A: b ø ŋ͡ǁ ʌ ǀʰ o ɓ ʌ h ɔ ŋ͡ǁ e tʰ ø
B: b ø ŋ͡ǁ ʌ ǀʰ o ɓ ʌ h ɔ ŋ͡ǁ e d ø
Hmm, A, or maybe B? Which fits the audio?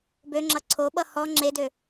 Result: B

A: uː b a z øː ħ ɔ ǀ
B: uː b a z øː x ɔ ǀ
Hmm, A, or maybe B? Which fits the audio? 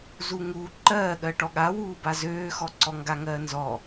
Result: B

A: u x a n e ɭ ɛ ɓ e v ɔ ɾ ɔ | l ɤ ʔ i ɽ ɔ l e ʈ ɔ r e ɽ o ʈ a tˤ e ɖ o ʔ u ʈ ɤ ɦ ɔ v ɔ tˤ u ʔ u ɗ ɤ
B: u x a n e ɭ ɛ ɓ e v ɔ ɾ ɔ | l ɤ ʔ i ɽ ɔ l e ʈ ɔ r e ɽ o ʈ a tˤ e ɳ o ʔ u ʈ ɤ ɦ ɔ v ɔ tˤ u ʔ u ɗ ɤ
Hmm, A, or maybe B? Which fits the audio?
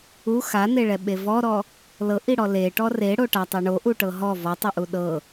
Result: B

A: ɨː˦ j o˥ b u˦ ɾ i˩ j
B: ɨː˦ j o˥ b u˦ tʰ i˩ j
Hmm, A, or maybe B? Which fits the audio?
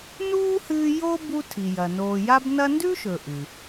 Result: B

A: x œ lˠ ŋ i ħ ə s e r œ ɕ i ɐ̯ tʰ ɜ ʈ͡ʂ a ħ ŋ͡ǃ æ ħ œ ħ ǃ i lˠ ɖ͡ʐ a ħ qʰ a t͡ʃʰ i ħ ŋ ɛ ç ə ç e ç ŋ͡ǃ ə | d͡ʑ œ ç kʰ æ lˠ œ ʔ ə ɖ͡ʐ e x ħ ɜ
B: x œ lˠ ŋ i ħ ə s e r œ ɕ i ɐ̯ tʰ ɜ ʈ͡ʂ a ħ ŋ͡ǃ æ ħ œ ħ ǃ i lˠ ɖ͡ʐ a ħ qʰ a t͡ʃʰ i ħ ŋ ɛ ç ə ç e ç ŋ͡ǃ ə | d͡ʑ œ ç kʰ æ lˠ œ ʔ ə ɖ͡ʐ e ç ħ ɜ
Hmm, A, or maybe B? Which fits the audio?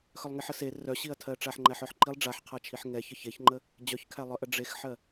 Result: A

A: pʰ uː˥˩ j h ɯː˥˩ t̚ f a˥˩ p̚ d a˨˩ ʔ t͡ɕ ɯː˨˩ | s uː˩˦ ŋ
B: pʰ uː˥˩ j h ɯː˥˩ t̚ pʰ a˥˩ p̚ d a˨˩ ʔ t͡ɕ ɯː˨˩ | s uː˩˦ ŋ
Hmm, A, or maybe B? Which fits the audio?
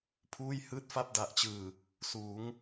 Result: A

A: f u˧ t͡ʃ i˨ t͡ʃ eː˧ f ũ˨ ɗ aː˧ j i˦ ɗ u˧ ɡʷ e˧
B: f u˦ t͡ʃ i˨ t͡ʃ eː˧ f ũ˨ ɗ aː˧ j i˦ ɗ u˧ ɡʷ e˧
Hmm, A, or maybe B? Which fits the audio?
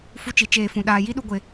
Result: B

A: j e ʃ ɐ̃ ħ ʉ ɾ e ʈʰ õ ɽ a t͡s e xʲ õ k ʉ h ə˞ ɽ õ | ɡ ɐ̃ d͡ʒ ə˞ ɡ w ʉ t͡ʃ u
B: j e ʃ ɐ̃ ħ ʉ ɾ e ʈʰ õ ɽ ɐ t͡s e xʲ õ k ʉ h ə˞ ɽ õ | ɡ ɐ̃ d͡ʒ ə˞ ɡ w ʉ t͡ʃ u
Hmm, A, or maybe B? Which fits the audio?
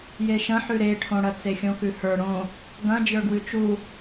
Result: B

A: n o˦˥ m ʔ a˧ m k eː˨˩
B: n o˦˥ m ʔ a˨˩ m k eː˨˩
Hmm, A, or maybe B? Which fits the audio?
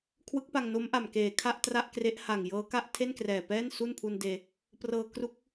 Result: B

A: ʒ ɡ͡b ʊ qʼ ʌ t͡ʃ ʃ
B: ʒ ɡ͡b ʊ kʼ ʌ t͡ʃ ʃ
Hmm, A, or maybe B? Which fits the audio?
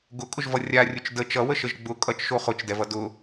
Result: B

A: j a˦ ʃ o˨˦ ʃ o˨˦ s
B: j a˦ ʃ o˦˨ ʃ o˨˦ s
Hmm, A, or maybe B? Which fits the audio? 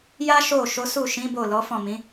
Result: B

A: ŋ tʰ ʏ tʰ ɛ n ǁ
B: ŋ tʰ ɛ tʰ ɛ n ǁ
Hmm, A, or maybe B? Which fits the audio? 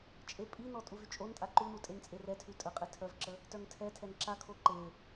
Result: B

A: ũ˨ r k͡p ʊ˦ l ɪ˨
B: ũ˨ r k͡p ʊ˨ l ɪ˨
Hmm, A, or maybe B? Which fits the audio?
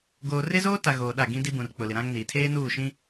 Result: B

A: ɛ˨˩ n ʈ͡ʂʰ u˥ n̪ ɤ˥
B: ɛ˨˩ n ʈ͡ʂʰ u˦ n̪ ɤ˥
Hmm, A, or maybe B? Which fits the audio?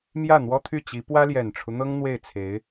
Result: B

